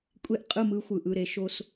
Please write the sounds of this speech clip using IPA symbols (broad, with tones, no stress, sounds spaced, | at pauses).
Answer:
kʷʼ e˦ ʔ qʼ ɯ˦˨ m ɯ˦ xʷ ɯ˨ ʔ ɯ˦˨ ɾ e˦ ʃ o˦ s